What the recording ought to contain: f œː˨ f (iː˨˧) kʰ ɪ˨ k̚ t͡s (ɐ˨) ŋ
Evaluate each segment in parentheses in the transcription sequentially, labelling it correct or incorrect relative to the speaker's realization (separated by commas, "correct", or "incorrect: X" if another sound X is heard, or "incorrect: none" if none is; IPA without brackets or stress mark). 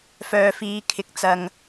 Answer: correct, correct